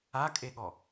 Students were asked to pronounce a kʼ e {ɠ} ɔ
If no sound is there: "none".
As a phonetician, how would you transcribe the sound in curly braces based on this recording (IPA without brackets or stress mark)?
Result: ɠ